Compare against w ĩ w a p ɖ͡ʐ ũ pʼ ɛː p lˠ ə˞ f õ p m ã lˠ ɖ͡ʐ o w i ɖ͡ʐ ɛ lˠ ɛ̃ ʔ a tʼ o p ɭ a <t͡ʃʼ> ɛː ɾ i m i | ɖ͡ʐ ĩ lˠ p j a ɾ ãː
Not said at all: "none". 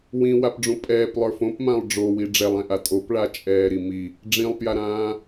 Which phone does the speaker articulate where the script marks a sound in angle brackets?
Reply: t͡ʃʼ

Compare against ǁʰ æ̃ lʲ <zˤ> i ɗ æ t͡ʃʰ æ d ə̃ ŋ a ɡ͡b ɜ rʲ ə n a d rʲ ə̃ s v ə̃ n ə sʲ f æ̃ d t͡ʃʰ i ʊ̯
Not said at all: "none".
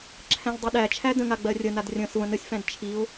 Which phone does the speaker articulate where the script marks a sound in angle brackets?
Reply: dˤ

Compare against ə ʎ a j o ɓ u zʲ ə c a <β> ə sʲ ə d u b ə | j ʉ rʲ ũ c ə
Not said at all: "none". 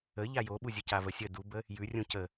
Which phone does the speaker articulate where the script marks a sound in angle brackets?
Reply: v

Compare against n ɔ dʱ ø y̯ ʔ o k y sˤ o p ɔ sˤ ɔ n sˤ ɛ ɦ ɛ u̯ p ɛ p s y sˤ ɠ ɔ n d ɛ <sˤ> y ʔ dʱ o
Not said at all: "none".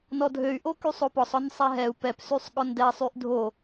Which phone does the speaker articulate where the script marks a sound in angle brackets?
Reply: sˤ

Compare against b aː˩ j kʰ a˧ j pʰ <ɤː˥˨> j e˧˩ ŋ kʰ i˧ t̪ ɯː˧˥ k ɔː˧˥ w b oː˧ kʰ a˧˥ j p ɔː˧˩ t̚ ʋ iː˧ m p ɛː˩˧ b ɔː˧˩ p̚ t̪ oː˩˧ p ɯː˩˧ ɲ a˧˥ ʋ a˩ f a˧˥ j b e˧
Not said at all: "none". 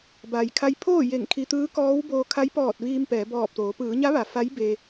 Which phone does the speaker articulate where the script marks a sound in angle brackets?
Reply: oː˥˨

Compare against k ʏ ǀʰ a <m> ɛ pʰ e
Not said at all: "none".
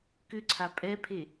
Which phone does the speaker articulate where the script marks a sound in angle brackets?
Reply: pʼ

